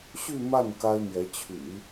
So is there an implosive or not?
no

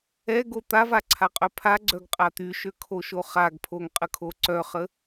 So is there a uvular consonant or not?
yes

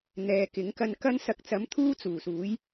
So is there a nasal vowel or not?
no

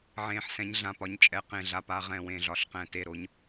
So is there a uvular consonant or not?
yes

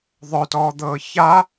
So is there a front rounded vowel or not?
yes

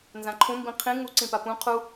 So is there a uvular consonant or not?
yes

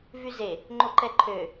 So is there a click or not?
yes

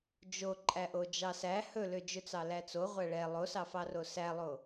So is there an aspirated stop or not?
no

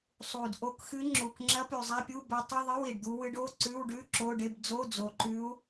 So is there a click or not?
yes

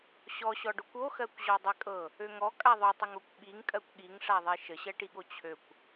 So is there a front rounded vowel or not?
yes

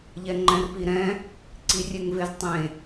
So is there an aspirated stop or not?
no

